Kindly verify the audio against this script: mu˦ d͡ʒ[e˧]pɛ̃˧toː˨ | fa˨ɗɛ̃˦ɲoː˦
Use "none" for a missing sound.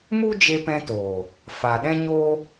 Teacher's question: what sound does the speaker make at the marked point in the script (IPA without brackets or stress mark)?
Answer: e˧